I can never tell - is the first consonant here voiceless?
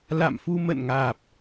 no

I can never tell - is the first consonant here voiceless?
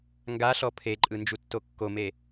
no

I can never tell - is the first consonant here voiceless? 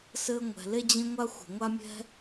yes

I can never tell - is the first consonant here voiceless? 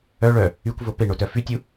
no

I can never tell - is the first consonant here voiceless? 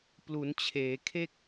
yes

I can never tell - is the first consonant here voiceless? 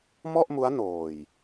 no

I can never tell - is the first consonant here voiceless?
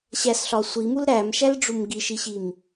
yes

